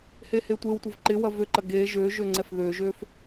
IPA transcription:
h e h e tʷ e w tʷ ɪ v ǃ ɪ w ɐ v ø ǃ ɐ ɡ e ʒ ø ʒ ø ŋ͡ǀ ɛ f ð ø ʒ ø f

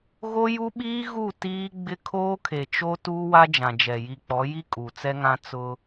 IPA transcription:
ɣ o˦ j u˦ ɓ iː˦ ɣ u˦˨ t iː˦ ɡ͡b ɪ˦ kʰ oː˦ kʰ e˨ t͡ʃ o˦ t uː˦ w a˦ d͡ʒ ã˨ d͡ʒ ɛ˨ j i˨ k͡p ɔ˨˦ j i˦ kʼ u˨ t͡s ɛ˦ ŋ ã˦ t͡s ʊ˦

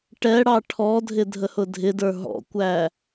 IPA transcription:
ʈ ɛ ɽ ɑ ʈʰ ɔ dʱ ɪ dʱ ə h ʊ dʱ ɪ d ə˞ ɦ ɔ̰ kʷ æ

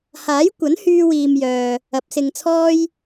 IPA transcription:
h aː˨˥ j kʷ ɐ˨˥ n h yː˧ w iː˨ m j œː˨ | ɐ˨˥ p̚ s ɪ˧ ŋ t͡sʰ ɔː˥ j

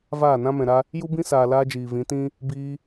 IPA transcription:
v aː˦˨ n ã˦ m ɛ̃˨ ɾ a˧ | j u˦ b ĩ˦ s aː˨ l aː˦ d͡ʒ iː˨ v ĩ˨˦ t ĩ˦ | b iː˧

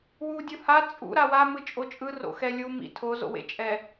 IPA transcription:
w u dʲ ɯ h a t͡sʼ ṵ ɾ a w a m ɯ t͡ʃʼ o t͡ʃʼ ɯ r o̰ x ɛ lʲ u m ḭ tʰ o z o̰ w ḛ t͡ʃʼ ɛ

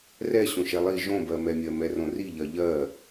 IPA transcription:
r ɛ ɕ õ ʃ ɛ lˠ i ʒ õ b ɜ m ɛ mʲ ɜ m ɛ r õ r i ʎ ɜ ʎ ɜ

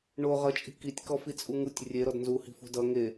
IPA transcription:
ɳ o ʁ ʌ t͡ʃʼ i̤ k i tʲ k ɔ f i t͡sʼ u ŋ u tʲ rʲ e ɾ ɔ d n z u h i̤ f ṳ d ʌ ŋ e

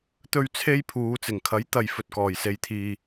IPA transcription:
t̪ ɵ˥ ɥ t͡sʰ e˥ j pʰ uː˨˧ t͡s ɪ˨˩ ŋ kʰ ɐ˨˥ j t̪ ɐ˨ j f ɵ˨ t̚ k ɔː˨˩ j s e˨ j t̪ʰ iː˨

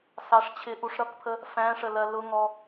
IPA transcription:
s ɑ ʂ t͡ɕʰ ɪ ʔ u ʂ ɾ ʌ k pʰ ə | f æ̃ ʂ ə l ɜ l ʊ ŋ ɔ

